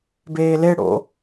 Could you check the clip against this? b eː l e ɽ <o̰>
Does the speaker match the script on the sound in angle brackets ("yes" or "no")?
yes